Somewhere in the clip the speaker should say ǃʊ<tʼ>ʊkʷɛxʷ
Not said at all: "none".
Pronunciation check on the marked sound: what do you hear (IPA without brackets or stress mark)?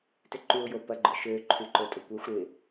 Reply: tʼ